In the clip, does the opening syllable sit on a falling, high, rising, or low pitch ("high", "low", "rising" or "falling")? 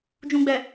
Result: low